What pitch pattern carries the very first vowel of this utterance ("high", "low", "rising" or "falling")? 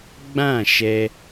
falling